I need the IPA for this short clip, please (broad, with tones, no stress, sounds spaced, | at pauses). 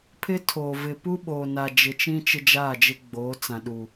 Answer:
pʰ ɪ˦ tʰ oː˨ v ɪ˨ p u˦ ɓ o˨ n a˨ d͡ʒ ɪ˨ t͡ʃ ĩ˦ t͡ʃ ɪ˦ d͡ʒ aː˦˨ d͡ʒ ɪ˦ ɡ͡b oː˨˦ t͡s ã˨ ɗ u˨